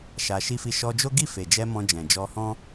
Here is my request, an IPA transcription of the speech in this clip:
ʃ a˧ ʃ i˦ f i˦˨ ʃ ɔ˧ d͡ʒ o˦ ɡ i˦˨ f e˨ d͡ʒ ɛ˧ m ɔ̃˧ d͡ʒ ɛ̃˨ d͡ʒ ɔ˧ h ɔ̃˦

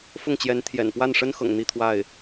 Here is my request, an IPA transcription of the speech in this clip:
f ʊ˥˩ ŋ t͡ɕ j ɛ˧˥ n t̪ʰ j ɛ̰˨˩ n p w a˥˩ n ʂ ə˥ n x ɤ̰˨˩ ŋ n̪ i˥˧ t̪ʰ w a˥˩ ɪ̯

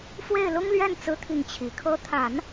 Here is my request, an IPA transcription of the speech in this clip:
f w e˥˩ ɪ̯ l ʊ˥ ŋ l ɥ ɛ˥˩ n t͡s ɹ̩˥ t̪ʰ i˥˩ ŋ t͡ɕʰ i˨˩ kʰ ɤ˧˥ t̪ʰ a˨˩˦ n

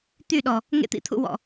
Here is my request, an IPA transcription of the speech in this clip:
t̪ y˦˨ ɗ ɔ˨ | ŋ ḛ˧ t̪ ḭ˨ t̪ʰ ṵ˧ w ɔ̰˨

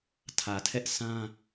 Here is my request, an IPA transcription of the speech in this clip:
tʰ ä˨ tʰ ɛ˦ ʔ s ã˦

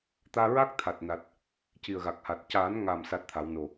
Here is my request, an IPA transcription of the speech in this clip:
t̪ aː˧ ɹ a˦˥ k̚ t̪ʰ a˨˩ t̚ n a˨˩ t̚ | c i˨˩ ə̯ ɣ a˨˩ k̚ h a˨˩ t̚ c aː˨˩˦ n ŋ a˨˩ m s a˦˥ t̚ t̪ʰ a˨˩˦ w n o˨˩

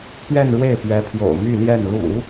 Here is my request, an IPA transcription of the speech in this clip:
pʰ ɥ ɛ˥˧ n ɻ w e˥˩ ɪ̯ p ɥ ɛ˧˥ pʰ j o̰˨˩ ʊ̯ m y˥˧ l j ɛ˥˩ n l ṵ˨˩˦

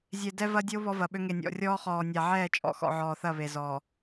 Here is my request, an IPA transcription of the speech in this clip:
zʲ e˨ d ɛ˦ v ɐ˦ dʲ o˦ β ɔ˦ v ɐ˨ ɓ ø˦ ŋ e˨ nʲ ɔ̰˨ rʲ ɔː˦ χ ɔː˨ nʲ a˨ ʕ ɛː˦˨ t͡ʃʼ ɔ̰˨ x ɔ̰˨ ʕ ɔː˨ θ ɐ˦˨ β e˨ z ɔː˨

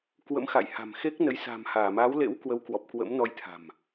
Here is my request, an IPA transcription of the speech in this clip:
k w ə̰˧˥ m x a̰˧˨ j h a̤˨˩ m x e˦˥ k̚ n ə˨˦ j s a̤˨˩ m h aː˧˩ m aː˨˦ w l ḛ˧˥ w k w ə˨˦ w k w ɔ˨˩ p̚ k w ə̰˧˥ m n ɔ˧ j t̪ʰ a̤˨˩ m

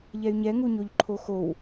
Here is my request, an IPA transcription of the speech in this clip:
ʎ ɛ y̯ ɲ ɛ ŋ u ɲ o ʎ ǃʰ o x o w

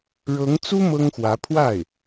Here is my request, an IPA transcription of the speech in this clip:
ɻ ɤ˧˥ ŋ t͡s u˥ m ɤ˥ ŋ x w ä˧˥ pʰ w a˥˩ ɪ̯

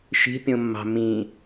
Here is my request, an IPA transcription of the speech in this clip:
ʃ i̤ pʲ õ mː ɑ̤ m ĩ

